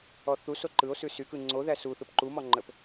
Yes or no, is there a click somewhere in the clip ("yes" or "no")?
yes